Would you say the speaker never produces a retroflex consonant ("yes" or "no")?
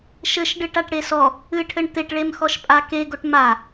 no